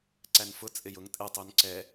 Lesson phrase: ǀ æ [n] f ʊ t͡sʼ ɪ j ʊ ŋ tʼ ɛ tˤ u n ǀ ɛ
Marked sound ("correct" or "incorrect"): correct